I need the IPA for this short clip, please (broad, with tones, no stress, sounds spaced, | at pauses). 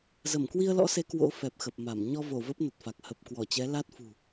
z ə˧˩ m k w i˧ ə̯ l ɔ̰˧˥ s e˨˦ k w o̰˧˥ f ɛ˨˩ p̚ x ə˨˩ p̚ m a˧˩ m ɲ ɔ˧ v o˧˩ v ə˦˥ p̚ n ə˨˩ t̚ f a˨˩ k̚ h ə˨˩ p̚ k w ɔ˧˩ t͡ɕ ɛ˨˦ l a˦˥ t̚ f ṳ˨˩